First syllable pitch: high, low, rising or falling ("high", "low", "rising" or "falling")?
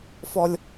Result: high